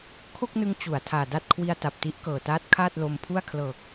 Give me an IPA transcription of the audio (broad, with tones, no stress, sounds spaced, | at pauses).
kʰ o˥˩ k̚ n ɯ˧ ŋ t͡ɕ u˩˦ a̯ tʰ aː˨˩ d a˥˩ t̚ kʰ w i˧ a̯ t a˨˩ p̚ t i˦˥ ʔ k ɤː˨˩ t aː˦˥ t̚ kʰ aː˥˩ t̚ l o˧ m pʰ u˥˩ a̯ kʰ l ɤː˨˩ k̚